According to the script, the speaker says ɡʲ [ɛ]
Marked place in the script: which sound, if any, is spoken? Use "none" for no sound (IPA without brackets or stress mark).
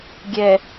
ɛ